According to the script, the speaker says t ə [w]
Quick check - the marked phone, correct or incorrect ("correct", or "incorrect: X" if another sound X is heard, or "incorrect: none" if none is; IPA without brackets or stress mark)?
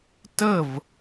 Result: incorrect: v